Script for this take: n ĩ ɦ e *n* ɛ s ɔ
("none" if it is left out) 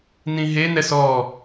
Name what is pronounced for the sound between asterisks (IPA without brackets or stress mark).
n